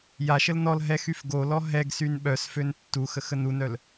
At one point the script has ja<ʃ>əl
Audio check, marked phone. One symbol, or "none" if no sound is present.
ʃ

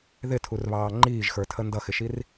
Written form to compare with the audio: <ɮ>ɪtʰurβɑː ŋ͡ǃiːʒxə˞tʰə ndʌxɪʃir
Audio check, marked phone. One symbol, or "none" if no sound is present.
ð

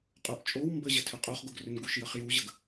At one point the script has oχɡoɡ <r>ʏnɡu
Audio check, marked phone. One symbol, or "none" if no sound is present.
r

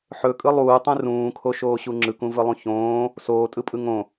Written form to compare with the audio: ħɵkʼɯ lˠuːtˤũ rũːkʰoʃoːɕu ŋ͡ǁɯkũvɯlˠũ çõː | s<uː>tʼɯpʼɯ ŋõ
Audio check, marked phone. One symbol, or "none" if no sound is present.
oː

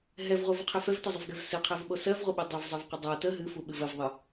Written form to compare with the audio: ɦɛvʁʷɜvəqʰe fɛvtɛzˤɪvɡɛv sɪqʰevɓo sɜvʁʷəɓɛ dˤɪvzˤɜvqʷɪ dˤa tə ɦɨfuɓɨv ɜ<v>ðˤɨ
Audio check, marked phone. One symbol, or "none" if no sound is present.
v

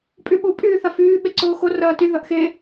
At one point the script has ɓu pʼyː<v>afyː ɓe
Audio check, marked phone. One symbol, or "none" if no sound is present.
θ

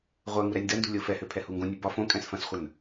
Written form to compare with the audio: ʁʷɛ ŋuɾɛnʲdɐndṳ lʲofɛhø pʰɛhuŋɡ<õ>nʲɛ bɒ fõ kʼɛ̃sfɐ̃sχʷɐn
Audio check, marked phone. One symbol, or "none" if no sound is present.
õ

